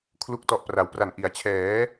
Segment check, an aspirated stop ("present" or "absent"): present